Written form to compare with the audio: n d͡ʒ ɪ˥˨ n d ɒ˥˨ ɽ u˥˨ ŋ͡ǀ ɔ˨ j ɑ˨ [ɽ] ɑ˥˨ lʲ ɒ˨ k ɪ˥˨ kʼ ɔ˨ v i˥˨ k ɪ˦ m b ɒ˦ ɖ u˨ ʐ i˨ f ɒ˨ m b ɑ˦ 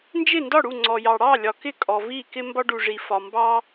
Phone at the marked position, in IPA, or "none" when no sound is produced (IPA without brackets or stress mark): ɽ